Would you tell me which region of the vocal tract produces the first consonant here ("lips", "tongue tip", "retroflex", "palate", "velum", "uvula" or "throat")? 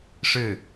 retroflex